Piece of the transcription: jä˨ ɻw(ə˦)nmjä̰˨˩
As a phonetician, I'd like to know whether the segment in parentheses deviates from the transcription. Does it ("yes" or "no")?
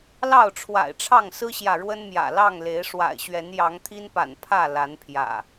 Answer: no